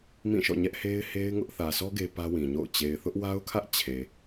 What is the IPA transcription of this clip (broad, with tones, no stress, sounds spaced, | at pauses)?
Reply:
m ĩ˦˨ ʃ ɔ̰˦˨ ɲ ɛ˦ ʔ h e˦ ɪ̯ h e˦ ɪ̯ ŋ ʊ˦ ʔ θ ä˨ sʰ ɔ˦ ɡ e˦ p ä˦ w ĩ˨ ɲ o̰˦˨ ʊ̯ t͡ɕ e˨ ɪ̯ θ ʊ˦ ʔ w a˦ ʊ̯ kʰ ä˦ ʔ t͡ɕʰ e˨